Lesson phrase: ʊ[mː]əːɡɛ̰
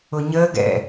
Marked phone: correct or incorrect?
incorrect